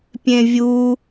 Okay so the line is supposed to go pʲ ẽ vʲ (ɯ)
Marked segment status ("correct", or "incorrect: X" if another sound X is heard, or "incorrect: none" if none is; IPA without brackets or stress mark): incorrect: u